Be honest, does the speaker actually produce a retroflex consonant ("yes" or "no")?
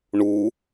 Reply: yes